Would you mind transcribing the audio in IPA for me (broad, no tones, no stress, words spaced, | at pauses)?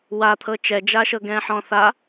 wat̪ʰɤ t͡ʃɛd͡ʒaʃɤɡɛ̃ː ħɔ̃θa